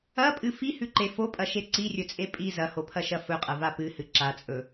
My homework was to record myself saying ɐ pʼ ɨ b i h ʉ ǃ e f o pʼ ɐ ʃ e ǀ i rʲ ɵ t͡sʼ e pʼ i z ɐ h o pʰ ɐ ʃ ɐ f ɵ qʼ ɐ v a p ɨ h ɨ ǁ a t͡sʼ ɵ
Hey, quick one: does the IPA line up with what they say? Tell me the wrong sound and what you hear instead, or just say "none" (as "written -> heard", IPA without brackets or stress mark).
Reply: b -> f